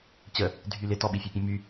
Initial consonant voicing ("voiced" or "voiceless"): voiceless